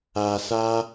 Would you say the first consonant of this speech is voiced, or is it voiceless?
voiceless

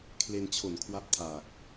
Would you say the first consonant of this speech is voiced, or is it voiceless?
voiceless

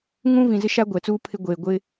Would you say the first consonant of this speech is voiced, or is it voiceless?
voiced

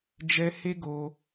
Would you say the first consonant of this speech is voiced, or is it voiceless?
voiced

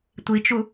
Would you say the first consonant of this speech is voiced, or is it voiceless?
voiceless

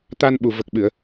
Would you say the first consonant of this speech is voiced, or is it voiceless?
voiceless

